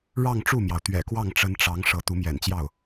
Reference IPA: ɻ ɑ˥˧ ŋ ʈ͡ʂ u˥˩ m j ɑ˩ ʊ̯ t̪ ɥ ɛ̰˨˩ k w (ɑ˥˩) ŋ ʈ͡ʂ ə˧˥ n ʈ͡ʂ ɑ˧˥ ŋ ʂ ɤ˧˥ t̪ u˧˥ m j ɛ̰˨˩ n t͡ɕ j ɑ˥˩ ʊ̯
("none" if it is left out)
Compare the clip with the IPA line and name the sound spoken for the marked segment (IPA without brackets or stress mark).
ɑ˥˩